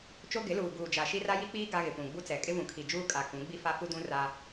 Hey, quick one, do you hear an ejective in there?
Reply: yes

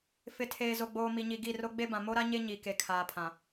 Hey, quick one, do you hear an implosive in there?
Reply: no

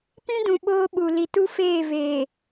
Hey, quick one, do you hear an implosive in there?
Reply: yes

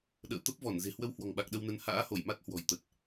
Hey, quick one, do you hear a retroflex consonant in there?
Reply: no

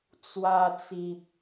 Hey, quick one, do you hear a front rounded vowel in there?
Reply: no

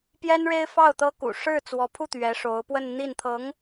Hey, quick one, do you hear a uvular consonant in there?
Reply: no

